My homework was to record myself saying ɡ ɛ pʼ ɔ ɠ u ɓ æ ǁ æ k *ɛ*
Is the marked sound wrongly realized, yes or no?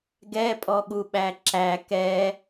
no